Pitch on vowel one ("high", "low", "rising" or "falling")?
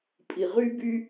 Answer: low